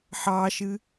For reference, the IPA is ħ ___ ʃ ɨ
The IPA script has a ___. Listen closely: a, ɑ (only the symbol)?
ɑ